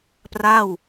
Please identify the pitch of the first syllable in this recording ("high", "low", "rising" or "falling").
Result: falling